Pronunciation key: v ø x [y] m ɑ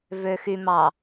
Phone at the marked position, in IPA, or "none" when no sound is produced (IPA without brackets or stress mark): y